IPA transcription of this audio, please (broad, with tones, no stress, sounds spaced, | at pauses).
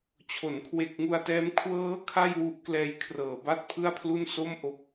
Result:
t͡ɕʰ o˩˦ n kʰ w e˨˩ k̚ ŋ u˧ a̯ t ɛː˦˥ m kʰ w ɤː˦˥ kʰ a˥˩ j w u˦˥ ʔ k l ɛː˦˥ j kʰ r ɤː˩˦ b a˥˩ t̚ pʰ ɯ˥˩ a̯ pʰ l u˥˩ n s o˥˩ m ʔ o˨˩ k̚